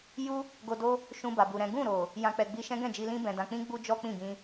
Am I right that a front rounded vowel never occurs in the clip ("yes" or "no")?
yes